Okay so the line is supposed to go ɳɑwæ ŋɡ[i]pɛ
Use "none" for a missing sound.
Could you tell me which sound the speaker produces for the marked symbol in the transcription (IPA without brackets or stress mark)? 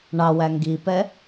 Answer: i